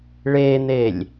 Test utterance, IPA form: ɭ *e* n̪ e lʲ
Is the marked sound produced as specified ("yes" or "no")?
yes